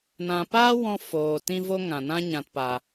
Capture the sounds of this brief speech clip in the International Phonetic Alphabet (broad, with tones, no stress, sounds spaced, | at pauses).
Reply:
n ã˨ p aː˦ w ɔ̃˧ f oː˨ t ĩ˧ v o˧ ŋ ã˨ n ã˦ ɲ ã˧ t p a˧